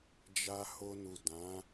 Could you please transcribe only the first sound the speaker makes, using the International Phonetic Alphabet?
d͡ʒ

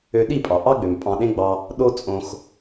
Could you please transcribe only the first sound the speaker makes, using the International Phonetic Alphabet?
ø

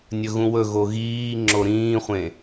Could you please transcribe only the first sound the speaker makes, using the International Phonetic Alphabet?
nʲ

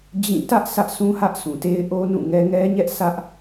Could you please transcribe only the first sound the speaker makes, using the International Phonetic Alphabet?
d͡ʑ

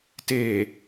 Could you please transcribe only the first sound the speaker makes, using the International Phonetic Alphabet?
t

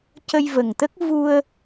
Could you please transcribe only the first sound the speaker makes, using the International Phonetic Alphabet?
c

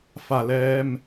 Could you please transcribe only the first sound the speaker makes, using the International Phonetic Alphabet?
f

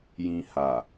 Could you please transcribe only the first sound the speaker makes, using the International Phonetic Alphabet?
j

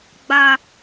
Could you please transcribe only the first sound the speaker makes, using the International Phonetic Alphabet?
ɡ͡b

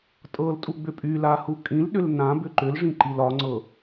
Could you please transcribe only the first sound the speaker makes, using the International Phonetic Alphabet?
tʼ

